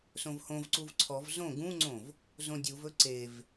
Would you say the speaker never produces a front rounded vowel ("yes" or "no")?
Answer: yes